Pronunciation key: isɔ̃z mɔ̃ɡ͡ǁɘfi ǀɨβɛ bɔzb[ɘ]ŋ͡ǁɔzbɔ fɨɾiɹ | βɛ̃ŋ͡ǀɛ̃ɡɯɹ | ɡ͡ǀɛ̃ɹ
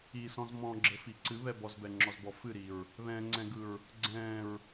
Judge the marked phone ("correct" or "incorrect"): incorrect